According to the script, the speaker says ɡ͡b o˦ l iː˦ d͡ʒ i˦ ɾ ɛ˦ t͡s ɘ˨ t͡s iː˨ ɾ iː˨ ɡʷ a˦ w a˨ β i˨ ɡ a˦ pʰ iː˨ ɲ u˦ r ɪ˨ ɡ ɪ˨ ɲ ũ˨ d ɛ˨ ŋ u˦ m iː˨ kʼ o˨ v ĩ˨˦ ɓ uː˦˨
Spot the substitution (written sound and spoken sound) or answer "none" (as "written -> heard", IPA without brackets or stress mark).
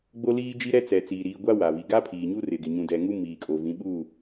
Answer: ɘ˨ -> ɛ˨